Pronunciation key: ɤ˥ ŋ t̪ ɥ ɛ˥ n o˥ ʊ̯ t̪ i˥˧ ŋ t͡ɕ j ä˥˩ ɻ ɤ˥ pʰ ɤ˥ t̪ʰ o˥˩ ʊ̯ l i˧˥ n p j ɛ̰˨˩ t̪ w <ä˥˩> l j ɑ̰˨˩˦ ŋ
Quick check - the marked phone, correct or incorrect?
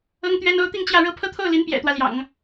incorrect